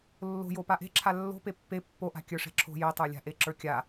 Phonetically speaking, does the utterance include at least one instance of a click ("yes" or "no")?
yes